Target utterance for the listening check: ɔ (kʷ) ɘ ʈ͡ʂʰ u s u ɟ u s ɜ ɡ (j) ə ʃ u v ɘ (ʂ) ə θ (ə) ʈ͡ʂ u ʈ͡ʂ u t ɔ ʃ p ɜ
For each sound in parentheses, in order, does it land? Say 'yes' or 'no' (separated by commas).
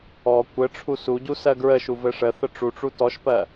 yes, no, yes, yes